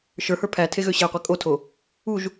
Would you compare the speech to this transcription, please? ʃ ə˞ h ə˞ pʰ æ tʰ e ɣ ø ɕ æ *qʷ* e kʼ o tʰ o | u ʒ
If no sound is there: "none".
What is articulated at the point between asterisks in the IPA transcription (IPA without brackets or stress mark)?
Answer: qʷ